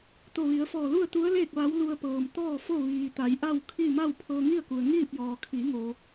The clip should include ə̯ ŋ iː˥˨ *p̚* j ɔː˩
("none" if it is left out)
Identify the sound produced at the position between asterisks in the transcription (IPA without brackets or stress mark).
p̚